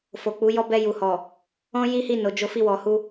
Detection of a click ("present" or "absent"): absent